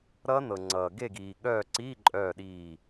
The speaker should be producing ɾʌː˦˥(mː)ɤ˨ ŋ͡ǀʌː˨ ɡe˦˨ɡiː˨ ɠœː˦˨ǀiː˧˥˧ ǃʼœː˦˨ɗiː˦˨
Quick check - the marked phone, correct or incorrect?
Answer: incorrect